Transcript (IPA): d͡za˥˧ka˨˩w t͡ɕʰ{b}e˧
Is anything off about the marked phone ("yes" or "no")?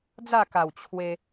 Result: yes